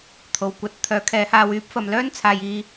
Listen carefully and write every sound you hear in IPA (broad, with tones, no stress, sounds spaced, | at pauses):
t̪ʰ o˨ w kʷ ɐ˨˥ t̚ t̪ʰ œː˨˥ kʰ ɛː˨˧ h aː˧ w yː˥ p̚ f ɐ˧ m l œː˥ n t͡sʰ aː˨ j iː˧